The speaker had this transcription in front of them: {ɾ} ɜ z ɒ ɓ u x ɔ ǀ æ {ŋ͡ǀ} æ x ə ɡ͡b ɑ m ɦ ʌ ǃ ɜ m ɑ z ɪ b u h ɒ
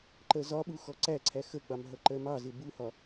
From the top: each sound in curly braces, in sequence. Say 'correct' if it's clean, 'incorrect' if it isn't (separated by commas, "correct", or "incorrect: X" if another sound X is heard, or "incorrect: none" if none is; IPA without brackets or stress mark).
incorrect: ǃ, incorrect: ǀʰ